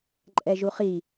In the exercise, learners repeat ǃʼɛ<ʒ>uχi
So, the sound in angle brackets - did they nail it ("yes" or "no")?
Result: yes